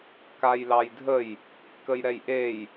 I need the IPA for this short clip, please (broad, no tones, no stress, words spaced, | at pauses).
kajlɑjdʱəj | kəjɾɛjʔej